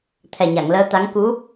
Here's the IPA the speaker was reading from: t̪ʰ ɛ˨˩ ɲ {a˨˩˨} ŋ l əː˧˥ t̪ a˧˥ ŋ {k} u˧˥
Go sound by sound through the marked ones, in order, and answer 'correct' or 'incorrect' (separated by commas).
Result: correct, correct